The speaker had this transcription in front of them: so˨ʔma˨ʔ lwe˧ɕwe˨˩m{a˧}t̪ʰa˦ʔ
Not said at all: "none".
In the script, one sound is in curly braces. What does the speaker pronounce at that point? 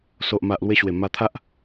a˧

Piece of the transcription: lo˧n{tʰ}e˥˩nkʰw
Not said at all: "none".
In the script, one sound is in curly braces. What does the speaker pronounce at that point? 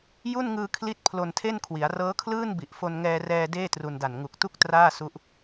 tʰ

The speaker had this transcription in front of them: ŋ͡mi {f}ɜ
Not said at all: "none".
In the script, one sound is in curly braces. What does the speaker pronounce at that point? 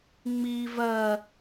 v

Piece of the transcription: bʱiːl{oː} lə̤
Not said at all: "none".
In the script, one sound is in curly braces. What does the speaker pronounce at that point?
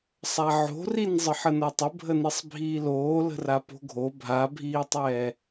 oː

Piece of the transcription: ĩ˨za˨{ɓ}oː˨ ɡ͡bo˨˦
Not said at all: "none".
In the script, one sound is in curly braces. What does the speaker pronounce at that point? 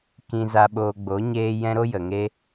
ɓ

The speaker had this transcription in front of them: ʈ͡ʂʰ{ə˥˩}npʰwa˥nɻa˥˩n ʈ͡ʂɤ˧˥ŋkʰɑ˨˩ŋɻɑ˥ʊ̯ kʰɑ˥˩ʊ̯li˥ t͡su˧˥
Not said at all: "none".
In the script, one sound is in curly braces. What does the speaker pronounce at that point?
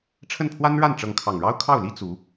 ə˥˩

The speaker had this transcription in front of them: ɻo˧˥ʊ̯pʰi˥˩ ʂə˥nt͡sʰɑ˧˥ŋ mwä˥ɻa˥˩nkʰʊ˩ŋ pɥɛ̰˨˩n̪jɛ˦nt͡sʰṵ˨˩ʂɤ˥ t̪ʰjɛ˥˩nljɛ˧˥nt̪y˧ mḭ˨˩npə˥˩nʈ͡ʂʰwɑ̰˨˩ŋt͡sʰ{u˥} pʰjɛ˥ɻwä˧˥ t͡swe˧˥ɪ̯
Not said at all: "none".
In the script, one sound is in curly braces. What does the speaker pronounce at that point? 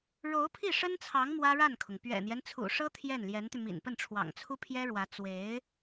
u˥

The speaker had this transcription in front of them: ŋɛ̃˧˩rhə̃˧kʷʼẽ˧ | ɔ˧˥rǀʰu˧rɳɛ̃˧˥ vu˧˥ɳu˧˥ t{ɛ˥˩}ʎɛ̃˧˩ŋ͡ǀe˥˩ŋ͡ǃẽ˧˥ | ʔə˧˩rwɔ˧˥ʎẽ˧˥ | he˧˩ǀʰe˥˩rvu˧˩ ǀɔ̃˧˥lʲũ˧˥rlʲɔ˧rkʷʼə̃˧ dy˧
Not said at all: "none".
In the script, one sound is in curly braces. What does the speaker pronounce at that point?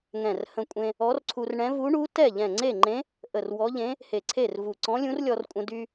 ɛ˥˩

